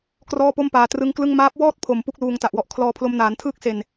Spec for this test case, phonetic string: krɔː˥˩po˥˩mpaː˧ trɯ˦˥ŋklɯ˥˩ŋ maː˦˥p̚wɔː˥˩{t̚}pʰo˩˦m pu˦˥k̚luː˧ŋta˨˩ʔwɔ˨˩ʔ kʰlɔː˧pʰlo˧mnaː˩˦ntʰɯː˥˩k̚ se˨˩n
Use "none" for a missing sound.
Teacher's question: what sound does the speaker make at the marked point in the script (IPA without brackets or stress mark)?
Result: t̚